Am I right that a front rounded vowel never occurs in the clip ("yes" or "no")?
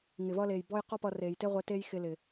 yes